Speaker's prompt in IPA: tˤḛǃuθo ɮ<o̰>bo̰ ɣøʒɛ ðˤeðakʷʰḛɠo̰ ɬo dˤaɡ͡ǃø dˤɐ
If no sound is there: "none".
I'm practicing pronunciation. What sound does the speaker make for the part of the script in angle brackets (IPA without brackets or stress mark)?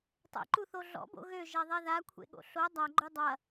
ɔ̰